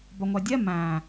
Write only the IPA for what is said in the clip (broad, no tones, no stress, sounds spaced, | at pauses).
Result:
b ɒ ŋʷ æ dʲ ɛ m æ̃